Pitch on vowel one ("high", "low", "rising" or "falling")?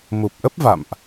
low